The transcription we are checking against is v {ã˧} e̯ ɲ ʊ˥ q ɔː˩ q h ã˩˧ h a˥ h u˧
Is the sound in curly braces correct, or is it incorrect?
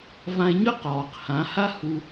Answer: correct